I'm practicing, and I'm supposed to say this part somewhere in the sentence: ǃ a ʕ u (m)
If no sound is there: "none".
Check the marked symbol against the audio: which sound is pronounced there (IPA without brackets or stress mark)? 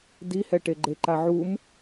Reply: m